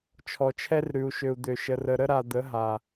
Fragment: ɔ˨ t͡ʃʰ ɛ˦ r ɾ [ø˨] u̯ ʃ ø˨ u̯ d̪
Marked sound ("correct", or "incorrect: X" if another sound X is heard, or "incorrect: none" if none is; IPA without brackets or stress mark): incorrect: ʉ˨